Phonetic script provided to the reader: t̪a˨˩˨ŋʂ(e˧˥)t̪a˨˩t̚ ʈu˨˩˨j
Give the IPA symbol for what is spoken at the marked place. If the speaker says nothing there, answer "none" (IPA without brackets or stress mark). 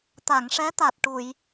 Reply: ɛ˧˥